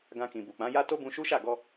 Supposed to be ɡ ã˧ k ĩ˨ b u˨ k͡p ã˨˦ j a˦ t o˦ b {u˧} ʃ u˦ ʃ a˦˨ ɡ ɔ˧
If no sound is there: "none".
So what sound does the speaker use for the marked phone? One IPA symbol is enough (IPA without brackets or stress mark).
ũ˧